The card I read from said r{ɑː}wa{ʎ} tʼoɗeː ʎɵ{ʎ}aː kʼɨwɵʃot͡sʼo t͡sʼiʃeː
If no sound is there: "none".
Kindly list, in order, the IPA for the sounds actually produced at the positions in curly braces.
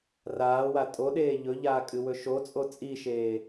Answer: aː, none, ʎ

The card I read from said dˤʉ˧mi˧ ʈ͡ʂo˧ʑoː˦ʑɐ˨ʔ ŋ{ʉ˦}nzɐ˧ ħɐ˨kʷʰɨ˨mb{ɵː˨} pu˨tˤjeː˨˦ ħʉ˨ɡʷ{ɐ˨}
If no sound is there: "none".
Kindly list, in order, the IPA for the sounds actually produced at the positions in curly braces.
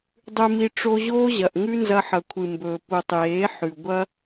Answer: ʉ˦, ɵː˨, ɐ˦

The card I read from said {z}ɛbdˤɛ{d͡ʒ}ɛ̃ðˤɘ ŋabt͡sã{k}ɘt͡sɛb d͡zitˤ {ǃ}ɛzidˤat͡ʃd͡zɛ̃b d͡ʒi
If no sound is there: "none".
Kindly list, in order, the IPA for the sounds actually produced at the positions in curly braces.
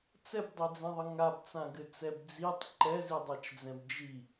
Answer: t͡s, d͡z, ɡ, ǃ

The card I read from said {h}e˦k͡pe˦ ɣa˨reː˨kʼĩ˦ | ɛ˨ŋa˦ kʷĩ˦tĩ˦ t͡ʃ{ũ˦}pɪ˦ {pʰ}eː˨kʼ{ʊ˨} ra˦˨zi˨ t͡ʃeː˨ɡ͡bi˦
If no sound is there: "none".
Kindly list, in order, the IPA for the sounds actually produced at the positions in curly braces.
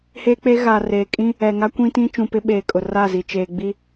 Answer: h, ũ˨, ɓ, ʊ˨

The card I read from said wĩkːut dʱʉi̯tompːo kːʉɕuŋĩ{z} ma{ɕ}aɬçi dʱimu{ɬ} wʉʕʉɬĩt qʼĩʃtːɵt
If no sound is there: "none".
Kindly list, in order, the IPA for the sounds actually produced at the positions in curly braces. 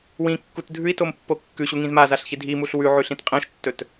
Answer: z, z, ɬ

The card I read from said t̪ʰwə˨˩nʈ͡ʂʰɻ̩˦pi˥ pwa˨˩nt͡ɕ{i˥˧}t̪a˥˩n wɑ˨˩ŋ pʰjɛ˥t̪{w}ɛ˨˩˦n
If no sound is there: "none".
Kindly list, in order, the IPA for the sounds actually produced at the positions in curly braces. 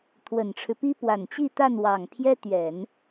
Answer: i˥˧, ɥ

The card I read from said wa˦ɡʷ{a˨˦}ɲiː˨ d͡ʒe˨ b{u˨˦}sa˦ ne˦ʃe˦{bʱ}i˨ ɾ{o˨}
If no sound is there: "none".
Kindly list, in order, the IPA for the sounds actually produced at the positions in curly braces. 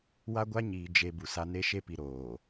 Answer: a˦, u˨, p, oː˨

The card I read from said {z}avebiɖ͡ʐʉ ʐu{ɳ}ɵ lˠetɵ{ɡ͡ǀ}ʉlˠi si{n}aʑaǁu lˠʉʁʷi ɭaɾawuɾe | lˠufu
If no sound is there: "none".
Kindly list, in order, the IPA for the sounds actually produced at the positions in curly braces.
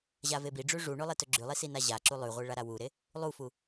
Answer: ʑ, ɳ, ɡ͡ǁ, n

